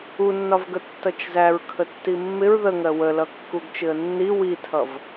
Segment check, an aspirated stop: present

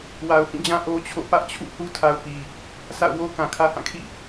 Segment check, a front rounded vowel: absent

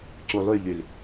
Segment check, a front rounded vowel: present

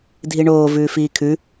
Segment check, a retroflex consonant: present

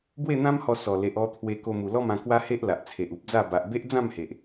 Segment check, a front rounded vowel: absent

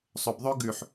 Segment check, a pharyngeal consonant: present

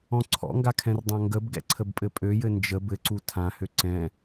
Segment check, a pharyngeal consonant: absent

